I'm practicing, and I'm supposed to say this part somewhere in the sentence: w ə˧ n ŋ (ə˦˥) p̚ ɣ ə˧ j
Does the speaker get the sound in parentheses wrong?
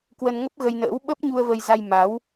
no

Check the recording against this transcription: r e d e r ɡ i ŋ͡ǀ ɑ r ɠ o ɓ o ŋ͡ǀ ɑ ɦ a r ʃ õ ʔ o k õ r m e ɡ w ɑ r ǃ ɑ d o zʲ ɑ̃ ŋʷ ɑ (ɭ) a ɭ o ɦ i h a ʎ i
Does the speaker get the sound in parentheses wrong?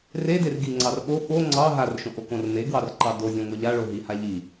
yes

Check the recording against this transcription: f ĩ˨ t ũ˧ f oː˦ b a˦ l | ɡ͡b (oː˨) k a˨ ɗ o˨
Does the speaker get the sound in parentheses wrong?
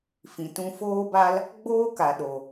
yes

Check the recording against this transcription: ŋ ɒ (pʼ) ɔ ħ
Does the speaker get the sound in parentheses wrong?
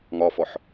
yes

